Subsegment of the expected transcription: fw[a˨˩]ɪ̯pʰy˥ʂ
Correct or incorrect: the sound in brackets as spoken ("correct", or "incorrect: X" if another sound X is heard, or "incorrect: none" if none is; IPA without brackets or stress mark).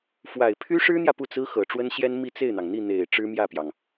correct